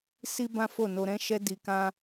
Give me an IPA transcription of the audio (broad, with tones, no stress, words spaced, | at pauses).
si˦bã˦ fo˦˨no˧ ɾɛ̃˦ʃɛ˦ di˧kã˦